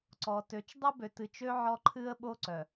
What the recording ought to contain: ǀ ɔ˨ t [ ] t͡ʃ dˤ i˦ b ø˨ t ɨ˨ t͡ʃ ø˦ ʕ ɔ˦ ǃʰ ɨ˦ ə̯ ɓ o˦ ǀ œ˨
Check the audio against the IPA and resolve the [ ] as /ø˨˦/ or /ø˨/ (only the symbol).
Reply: ø˨˦